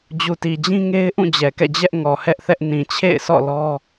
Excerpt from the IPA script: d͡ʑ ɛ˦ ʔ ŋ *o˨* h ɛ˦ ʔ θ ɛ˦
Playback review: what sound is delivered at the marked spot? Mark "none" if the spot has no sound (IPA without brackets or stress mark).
ɔ˨